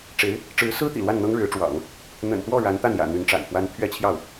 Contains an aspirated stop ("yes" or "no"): yes